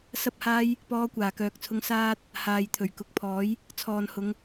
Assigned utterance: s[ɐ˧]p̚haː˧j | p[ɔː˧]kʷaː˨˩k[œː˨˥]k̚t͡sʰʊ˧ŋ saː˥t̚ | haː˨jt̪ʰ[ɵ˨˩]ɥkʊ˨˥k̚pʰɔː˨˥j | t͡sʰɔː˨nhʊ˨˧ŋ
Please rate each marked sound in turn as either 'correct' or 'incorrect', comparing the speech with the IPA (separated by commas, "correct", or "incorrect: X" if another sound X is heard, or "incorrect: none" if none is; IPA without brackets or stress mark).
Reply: correct, correct, incorrect: œː˨, correct